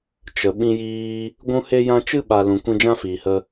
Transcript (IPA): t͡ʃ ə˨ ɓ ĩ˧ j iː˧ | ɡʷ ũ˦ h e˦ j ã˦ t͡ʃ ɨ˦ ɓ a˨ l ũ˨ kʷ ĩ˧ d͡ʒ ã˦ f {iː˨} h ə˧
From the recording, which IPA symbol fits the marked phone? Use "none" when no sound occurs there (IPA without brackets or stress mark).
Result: iː˨